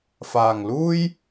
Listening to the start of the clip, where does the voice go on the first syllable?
low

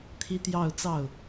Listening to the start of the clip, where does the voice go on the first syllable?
high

